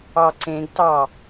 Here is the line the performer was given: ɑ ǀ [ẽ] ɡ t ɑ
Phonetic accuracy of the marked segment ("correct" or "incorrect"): correct